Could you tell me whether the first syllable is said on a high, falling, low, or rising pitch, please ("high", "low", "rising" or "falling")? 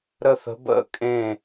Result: falling